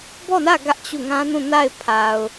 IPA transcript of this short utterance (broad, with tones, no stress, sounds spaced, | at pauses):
b ɔ˦˨ n ä˦˨ ɡ ä˦ ʔ t͡ɕ u˦˨ ŋ ã˦ n ũ˦˨ n a˦˨ ɪ̯ pʰ a˨ ʊ̯